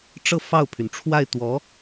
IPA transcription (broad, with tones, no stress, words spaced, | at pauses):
ʈ͡ʂɤ˥˧fɑ˥˩ʊ̯pʰy˩n ʈ͡ʂʰwa˥˩ɪ̯t̪wɔ˧˥